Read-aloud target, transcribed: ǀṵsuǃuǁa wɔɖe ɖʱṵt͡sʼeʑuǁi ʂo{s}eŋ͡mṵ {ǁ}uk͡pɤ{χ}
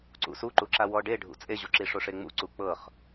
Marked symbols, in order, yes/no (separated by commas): no, no, yes